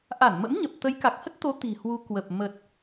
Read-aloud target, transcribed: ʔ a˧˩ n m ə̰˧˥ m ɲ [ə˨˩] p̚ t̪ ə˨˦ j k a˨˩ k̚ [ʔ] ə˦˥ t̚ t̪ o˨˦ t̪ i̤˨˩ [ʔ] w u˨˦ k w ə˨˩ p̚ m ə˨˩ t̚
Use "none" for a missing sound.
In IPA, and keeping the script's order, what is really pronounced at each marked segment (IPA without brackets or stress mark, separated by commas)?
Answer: ə˨˩, h, h